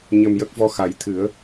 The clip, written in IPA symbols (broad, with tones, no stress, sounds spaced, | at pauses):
ɲ ə˧ m j ə˦˥ k̚ v ɔ˧ x a˨˩˦ j t̪ʰ ɨ˨˩˦ ə̯